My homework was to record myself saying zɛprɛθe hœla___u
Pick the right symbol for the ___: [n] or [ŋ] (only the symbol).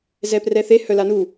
n